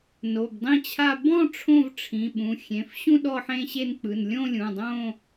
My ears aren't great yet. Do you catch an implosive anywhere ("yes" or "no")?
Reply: yes